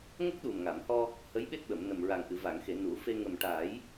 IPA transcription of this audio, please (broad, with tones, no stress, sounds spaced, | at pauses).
ŋ ə˦˥ k̚ ɗ u˨˩ m ŋ a˨˩˨ m h ɔ˧ | h ə˧˥ j ɓ e˦˥ t̚ ɓ ə˨˩˨ m n ə˨˩ m ɹ a˨˩ ŋ ʔ ɨ˨˩˨ v a˨˩˨ ŋ x e˨˩˨ n u˨˩˦ f e˧ ŋ ə˨˩ m ʈ a˨˩˦ j